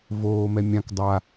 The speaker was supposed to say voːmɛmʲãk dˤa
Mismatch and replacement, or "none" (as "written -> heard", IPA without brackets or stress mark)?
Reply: none